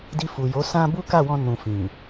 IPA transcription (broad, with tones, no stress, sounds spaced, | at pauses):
d i˧ f u˨ j o˨˦ s ã˦ b u˦ k a˦˨ w ɔ̃˧ n ũ˨ f ĩ˨